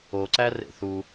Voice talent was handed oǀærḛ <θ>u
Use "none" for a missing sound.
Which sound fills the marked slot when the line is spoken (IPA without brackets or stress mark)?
θ